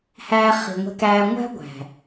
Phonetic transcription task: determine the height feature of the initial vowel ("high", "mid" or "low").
low